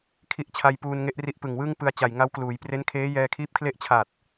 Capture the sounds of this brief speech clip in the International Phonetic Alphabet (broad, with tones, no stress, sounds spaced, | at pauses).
kʰ i˦˥ ʔ t͡ɕʰ a˧ j p uː˧ n ŋ e˦˥ ʔ r i˦˥ ʔ p ɯ˨˩ ŋ w ɯ˥˩ ŋ p ɯ˧ a̯ t͡ɕ a˨˩ j ŋ a˦˥ w k l uː˩˦ j p r e˦˥ n kʰ eː˦˥ j ɛː˧ kʰ iː˦˥ p̚ kʰ l e˥˩ ʔ t͡ɕʰ a˨˩ t̚